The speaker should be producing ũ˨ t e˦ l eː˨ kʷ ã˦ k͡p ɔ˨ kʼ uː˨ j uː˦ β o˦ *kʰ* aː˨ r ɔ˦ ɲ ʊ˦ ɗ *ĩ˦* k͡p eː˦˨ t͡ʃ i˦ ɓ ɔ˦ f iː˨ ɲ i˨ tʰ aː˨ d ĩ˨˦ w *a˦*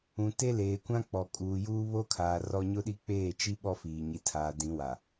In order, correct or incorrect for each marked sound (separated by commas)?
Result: correct, incorrect, incorrect